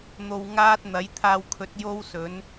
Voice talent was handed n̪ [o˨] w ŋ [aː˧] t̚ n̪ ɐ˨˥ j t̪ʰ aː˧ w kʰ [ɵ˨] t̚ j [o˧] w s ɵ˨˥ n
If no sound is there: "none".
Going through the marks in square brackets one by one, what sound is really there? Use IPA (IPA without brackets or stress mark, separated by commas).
o˧, aː˥, ɵ˨˥, o˥